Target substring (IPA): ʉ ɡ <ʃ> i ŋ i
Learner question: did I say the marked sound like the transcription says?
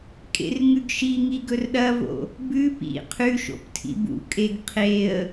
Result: yes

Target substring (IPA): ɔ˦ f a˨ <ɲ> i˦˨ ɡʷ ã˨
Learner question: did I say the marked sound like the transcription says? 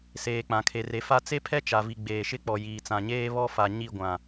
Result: yes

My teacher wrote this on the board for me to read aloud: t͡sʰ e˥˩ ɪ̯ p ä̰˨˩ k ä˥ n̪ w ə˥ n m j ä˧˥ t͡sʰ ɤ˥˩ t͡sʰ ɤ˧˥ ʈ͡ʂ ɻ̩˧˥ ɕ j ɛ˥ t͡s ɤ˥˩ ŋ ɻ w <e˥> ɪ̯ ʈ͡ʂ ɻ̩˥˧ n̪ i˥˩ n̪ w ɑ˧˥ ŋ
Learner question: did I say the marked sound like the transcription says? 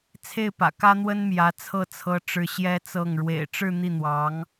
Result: no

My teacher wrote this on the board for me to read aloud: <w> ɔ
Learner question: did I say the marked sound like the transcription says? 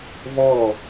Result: no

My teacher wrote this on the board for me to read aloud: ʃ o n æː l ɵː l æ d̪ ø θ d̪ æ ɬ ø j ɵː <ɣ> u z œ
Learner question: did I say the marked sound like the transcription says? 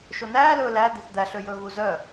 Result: yes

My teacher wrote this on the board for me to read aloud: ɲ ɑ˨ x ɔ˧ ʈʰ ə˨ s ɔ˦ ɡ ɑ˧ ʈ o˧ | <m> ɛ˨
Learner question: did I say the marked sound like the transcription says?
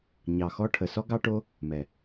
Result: yes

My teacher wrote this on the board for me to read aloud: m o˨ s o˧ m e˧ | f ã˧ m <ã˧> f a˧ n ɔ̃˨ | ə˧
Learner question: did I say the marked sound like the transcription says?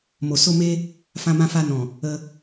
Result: yes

